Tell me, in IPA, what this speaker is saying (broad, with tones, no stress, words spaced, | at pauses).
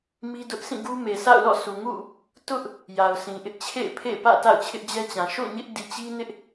mi˦dʊ˦ʔ sʰĩ˦˨ɡu˦me˨sʰa̰˦˨ʊ̯ lɔ̰˦˨sʰu˨ŋṵ˦˨ | tʊ˦ʔ | ja˨ʊ̯sʰĩ˨ʔɪ˦ʔ t͡ɕʰḛ˦˨ɪ̯pʰḛ˦˨pä̰˦˨ ta̰˦˨ʊ̯t͡ɕʰɪ˦ʔd͡ʑɛ˦t͡ɕã˨ ʃo̰˦˨ɲɪ˦ʔ di˨t͡ɕi˦nɪ˦ʔ